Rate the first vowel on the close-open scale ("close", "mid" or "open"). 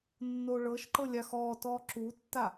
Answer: mid